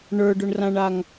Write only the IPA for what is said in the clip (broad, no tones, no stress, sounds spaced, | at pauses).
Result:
ɳ ə˞ ɖ ʊ ɳ r ã ɳ a ŋ